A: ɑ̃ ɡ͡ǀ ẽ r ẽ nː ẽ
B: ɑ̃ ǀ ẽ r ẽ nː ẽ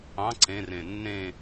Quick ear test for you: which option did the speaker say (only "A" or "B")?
B